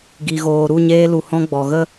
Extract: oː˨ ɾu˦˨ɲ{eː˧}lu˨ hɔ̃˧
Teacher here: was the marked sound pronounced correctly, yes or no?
yes